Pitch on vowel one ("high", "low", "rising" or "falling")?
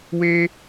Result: high